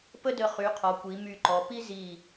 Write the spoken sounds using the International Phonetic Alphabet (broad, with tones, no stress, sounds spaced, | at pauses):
p ə˥ d ə˧ χ y˩˧ qʰ ɔ˩˧ kʷ i˩˧ m y˧˩ ǃ ɔ˩˧ p i˥ z i˧˩